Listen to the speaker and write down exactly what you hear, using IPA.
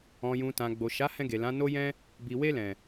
ɔ̃˨ j ũ˨ t ã˨ ɡ͡b o˨ ʃ a˨˦ h ɛ̃˧ ɡ e˨ l ã˨˦ n o˦ j ɛ̃˦ | b i˨ w e˧ l ɛ̃˨

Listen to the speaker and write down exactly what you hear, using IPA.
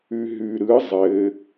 ʉ ɦ ʉ ɾ ɯ zˤ ɘ

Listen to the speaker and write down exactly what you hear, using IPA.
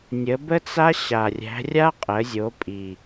nʲ ə˩˧ b ə˧ t͡s a˧ ɕ a˩ rʲ æ̤˩˧ rʲ a˧ qʼ ə˩˧ zʲ o˩˧ pʼ i˩

